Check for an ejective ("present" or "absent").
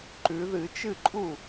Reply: present